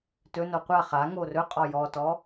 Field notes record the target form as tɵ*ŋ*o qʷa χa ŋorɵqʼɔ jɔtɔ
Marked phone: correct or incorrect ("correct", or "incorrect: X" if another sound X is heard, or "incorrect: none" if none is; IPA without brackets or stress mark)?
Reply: incorrect: n